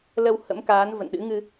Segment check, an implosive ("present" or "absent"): present